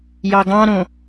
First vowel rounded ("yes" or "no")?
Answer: no